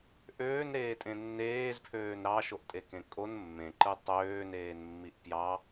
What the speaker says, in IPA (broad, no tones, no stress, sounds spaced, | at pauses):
ʔ øː n ɾ eː tʼ ẽ nː eː z pʰ øː n ɾ ɑ ʃ o ʔ tʼ e k ẽ kʼ o n mː ẽ ǃ ɯ tˤ øː n eː n mː i ʔ p j ɑ